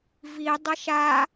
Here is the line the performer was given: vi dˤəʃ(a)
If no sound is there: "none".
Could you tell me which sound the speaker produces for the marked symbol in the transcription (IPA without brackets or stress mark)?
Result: a